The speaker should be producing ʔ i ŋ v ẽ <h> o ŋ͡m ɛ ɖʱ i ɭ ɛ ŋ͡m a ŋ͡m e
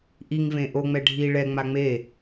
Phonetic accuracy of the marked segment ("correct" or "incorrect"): incorrect